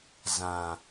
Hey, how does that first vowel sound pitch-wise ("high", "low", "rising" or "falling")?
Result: low